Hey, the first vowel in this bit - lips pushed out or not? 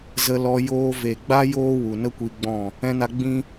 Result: no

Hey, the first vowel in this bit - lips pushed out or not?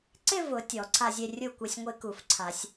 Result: no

